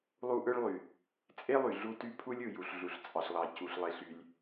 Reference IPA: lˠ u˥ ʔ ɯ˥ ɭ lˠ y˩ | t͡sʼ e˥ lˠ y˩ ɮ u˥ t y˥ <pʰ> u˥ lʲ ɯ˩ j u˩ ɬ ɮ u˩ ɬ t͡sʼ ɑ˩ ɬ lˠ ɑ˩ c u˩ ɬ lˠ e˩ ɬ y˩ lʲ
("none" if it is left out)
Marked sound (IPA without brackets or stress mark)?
pʰ